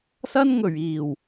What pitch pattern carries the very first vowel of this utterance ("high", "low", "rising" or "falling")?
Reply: high